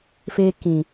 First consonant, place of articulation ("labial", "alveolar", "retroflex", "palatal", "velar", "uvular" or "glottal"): labial